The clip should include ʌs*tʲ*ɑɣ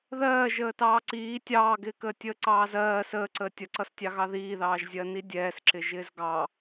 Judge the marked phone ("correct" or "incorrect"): correct